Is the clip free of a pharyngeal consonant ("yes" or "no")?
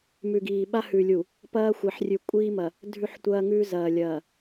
no